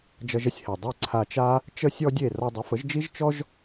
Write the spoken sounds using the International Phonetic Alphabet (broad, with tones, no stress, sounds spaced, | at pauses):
d͡ʒ ʌ˧ ʒ ə˥ sʲ h e˩ dˤ i˥˩ ǀʰ a˧ t͡ʃ a˥ | t͡ʃ ə˥ sʲ ɔ˥ dʲ e˥˩ r ɔ˧ dˤ ə˩˥ f ə˩˥ ʒ d͡ʒ i˥ ʒ t͡ʃ ɔ˥ ʒ